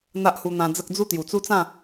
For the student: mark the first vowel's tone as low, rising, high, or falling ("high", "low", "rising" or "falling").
high